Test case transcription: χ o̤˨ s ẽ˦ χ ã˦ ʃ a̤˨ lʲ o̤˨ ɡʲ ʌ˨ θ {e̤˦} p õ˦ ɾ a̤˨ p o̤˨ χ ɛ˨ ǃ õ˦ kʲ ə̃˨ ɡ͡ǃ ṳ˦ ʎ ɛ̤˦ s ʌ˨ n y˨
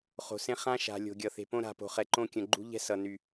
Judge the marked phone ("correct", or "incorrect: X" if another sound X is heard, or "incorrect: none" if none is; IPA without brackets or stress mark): incorrect: e̤˨